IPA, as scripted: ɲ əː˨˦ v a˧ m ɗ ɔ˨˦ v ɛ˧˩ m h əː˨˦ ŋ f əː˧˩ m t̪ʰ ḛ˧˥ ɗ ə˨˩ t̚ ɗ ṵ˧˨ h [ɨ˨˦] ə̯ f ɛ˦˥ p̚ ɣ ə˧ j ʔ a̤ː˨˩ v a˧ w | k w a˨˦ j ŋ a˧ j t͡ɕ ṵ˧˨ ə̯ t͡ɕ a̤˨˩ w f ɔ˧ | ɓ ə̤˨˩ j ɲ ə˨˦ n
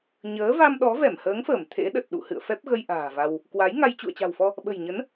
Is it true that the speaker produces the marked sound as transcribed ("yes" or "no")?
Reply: no